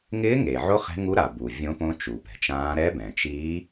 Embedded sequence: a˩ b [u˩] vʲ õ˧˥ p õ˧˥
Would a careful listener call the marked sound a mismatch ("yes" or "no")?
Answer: no